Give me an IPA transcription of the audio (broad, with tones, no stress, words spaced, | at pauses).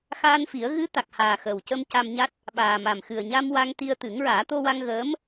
xaː˧nfi˨˩˦ə̯ ɣɨ˧˥ t̪a˨˩k̚haː˨˩ xəː˨˩wcə˧m ca˧mɲa˦˥t̚ | ɓaː˨˩ma˨˩m xɨ˨˩ə̯ɲa˧m wa˧ŋt̪i˧ə̯ t̪ɨ˨˩˦ŋɹaː˨˩˦t̪o˧wa˧ŋ ɣəː˧˥m